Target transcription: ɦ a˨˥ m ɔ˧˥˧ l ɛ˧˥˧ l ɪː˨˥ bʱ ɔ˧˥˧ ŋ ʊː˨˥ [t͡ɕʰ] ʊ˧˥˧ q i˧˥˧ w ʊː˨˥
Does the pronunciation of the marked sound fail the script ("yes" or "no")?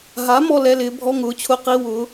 no